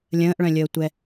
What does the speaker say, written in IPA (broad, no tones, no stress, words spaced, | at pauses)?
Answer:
lʲə̃ːʔɭœ̃lʲəːtʷɛ